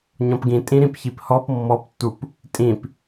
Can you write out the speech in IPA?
ɲ ɔ̃ p ɡ ĩ tʼ ĩ ɾ ĩ p ç i p h ɔ p mː ɔ p tː u p | tʼ ĩ p

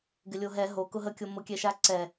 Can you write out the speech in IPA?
ɡ ɪ lʲ o ɦ ɛ ɦ o k ʊ ɦ ə kʲ o m ʊ kʲ ɛ ʃ a ǀ ɛ

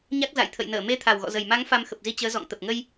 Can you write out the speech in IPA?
ɲ a˦˥ k̚ z a̰˧˨ j t̪ʰ ə̰˧˨ j n əː˧˩ m e˧ t̪ʰ a˨˩ w ɣ ɔ̰˧˨ z ə˨˩ j m a˨˦ ŋ f a˧ m x ə˨˩ p̚ z i˧ t͡ɕ əː˨˦ z ɔ̰˧˨ ŋ t̪ ə˨˩ p̚ ŋ ə˧ j

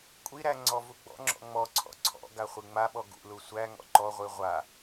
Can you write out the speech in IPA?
kʷʼ i ɾ æ ŋ͡ǀ ɔ v u ɡ͡b ɔ̰ ŋ͡ǁ ɔ̰ ŋ͡m ɔ ǀʰ ɔ̰ ǀʰ ɔ̰ ɡ a χʷ i ŋ͡m a ɓ ɔ ɡ ṵ l u sʷ æ ŋ ɔ̰ ǃ ɔ ʁʷ i ʁʷ a

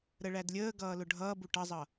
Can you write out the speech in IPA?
ɾ ə ɭ æ d lʲ əː ɡ ʌː l ʊ ɖʱ ʌː b u ʈ ʌ zˤ ʌ

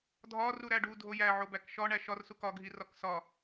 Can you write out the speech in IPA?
dʱ ɒ r u ɾ æ ɖ u dʱ o j æ ʕ o b æ k ʃ ɒ ɳ æ ʃ ɒ r s u k ɒ ɡʱ i r ɒ k s ɒ

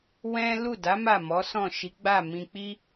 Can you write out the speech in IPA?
w ɛ̃˦ l u˦˨ d a˨˦ m a˦˨ m ɔ˨˦ s ɔ̃˦˨ ʃ i˨˦ ɡ͡b a˦˨ m ĩ˧ k͡p i˦

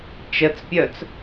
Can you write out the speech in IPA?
t͡ʃ ə t͡s pʲ œ t͡s

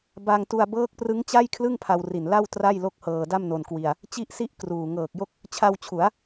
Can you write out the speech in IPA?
b a˧ ŋ t u˧ a̯ b ɤː˦˥ k̚ p r ɯ˦˥ ŋ t͡ɕ a˥˩ j kʰ l ɯ˥˩ ŋ pʰ a˧ w r i˨˩ n l a˥˩ w t r a˥˩ j l o˥˩ k̚ h ɤː˧ d a˥˩ m n o˧ n k w i˧ a̯ | t͡ɕ i˦˥ ʔ s i˦˥ ʔ k r uː˨˩ ŋ ɤː˨˩ k̚ j o˥˩ k̚ | t͡ɕʰ a˧ w t͡ɕʰ u˩˦ a̯

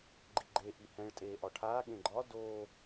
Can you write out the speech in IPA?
ɡ͡ǃ i ɡ͡ǃ e ʔ i h ɛ̃ ɭ tʼ eː ʔ ɒ ʈʰ aː ɠ ẽ ɡ͡ǃ ɒ d o

